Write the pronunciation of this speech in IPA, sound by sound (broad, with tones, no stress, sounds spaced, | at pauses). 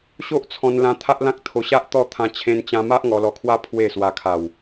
ɕ o˦ ʔ t͡sʰ ɔ̃˧ n l ã˧ t̪ʰ a˦ ʔ l ã˦ k̚ t̪ʰ o˧ ɕ a˦ ʔ t̪ ɔ˥˧ t̪ʰ ã˧ t͡ɕʰ ẽ˧ n t͡ɕ ã˧ m a˦ ʔ ŋ ɔ˧ l ɔ˧ kʰ w a˦ pʰ w e˥˧ s w a˧ kʰ a˨˩ w